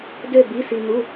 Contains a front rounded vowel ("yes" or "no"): yes